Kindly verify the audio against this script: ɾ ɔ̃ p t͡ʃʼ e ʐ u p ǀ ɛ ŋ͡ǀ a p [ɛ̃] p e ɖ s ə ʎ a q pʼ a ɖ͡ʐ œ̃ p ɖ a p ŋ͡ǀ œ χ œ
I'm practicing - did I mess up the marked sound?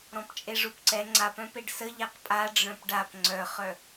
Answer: yes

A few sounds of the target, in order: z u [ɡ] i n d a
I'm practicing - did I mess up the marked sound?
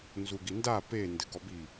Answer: no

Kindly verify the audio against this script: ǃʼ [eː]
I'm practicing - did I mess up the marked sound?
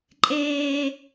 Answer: no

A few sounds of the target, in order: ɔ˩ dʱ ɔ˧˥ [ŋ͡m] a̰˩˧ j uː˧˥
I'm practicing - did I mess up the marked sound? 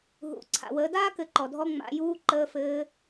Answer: no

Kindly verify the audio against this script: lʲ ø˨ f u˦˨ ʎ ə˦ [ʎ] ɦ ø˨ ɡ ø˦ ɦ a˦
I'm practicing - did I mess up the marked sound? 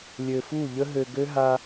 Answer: yes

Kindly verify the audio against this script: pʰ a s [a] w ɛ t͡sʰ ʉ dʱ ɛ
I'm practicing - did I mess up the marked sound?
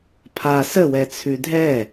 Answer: yes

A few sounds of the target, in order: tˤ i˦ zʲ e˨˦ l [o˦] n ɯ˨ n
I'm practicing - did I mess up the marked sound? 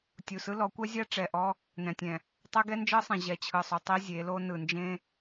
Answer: no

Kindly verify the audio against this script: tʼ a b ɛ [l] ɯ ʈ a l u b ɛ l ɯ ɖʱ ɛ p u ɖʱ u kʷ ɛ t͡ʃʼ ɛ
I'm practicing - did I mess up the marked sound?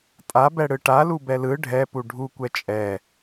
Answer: yes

